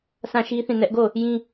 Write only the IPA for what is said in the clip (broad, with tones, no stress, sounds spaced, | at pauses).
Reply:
sʰ ã˦˨ ʃ i˦ θ ĩ˦˨ n ɛ˦ ʔ ɡ o˦˨ | j ĩ˦